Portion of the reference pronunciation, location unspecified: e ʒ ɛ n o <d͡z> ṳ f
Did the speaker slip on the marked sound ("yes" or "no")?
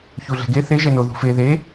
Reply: yes